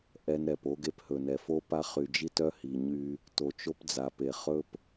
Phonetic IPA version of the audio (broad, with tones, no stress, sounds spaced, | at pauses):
ʔ ɛ˦ n ɾ ɛ˨ p o˦ ɡ e˦ p h ɵ˨ n ɛ˨ f o˦ p a˦ χ y˨ d͡ʒ i˦ t œ˦ h i˨ ɲ y˦ | t o˨ t͡ʃ o˦ p d͡z a˨ p e˨ χ ɵ˦ p